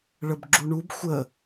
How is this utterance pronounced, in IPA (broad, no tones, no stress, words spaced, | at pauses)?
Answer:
ɭəbɡ͡ǁuɳub xʷə